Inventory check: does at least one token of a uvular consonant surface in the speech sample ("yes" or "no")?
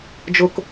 no